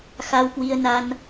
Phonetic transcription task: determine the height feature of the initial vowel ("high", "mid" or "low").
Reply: low